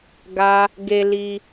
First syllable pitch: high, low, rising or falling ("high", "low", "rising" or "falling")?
high